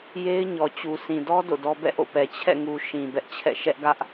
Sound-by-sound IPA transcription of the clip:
j e˦ ɪ̯ ɲ ɔ˨ t͡ɕ u˨ s ĩ˨ d ɔ˦ d o̰˦˨ d ɔ˦ b ɛ̰˦˨ ʔ o̰˦˨ p ɛ˨ t͡ɕʰ ɛ̰˦˨ ŋ u˨ ʃ ĩ˨ b ɛ˦ ʔ t͡ɕʰ ɛ̰˦˨ ʃ ɛ˦ ʔ ɡ ä˦ ʔ

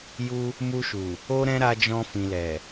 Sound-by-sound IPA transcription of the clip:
j u˧ | m u˧ ʃ u˨ | o˦ ɾ ɛ̃˦ ɾ a˧ d͡ʒ ɔ̃˧ f ĩ˨ l ɛ˨

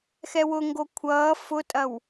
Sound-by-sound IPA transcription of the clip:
x ɛ w ʊ ŋ ɡ o kʷʰ ʌː f ʊ tʼ ɐ w

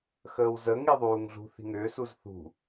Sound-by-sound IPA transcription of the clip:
x əː w z ə ŋ i ðˤ uː ŋ ɮ ṳ θ i̤ ŋ ʏː s u z θ ṳ

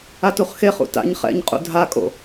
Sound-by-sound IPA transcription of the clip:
a t u χ x e χ ṵ t a̰ ɲ χ ɛ̰ ɲ qʼ ṵ dʱ a kʼ o̰

